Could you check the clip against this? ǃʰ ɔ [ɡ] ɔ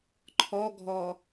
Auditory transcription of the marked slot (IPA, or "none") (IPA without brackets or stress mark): ɡʱ